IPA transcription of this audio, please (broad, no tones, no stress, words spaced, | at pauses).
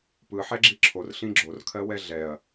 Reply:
pɯħɛɡ͡ǁi ǁʰorɬĩ ɡ͡ǁorkʰɜwɛ ɮɛɐ̯